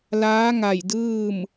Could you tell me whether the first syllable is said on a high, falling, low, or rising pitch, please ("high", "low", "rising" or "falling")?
rising